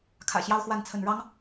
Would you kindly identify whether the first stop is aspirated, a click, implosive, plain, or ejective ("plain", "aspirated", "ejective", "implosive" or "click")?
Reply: aspirated